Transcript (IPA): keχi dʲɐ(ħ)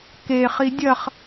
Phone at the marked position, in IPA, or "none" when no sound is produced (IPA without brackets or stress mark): χ